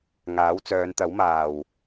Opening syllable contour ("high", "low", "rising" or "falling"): rising